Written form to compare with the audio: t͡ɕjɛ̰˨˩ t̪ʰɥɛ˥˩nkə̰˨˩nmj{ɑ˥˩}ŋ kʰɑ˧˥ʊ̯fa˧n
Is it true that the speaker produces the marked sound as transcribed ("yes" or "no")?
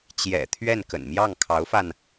yes